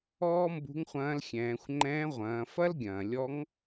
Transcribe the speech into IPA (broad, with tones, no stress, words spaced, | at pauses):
ɔː˥mbṳ˧˥ŋ χʷɐ̃ː˧˥lxʲɛ̃ː˩˧xʷ ŋ͡ǃɛ̃ː˧˥ʁʷɐ̃ː˩˧ fɐ˥lɡʲɐ̃ː˩ lʲɔ˧˥ŋ